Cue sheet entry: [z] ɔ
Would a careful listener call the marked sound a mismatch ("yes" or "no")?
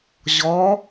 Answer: yes